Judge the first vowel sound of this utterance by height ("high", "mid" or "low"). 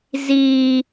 high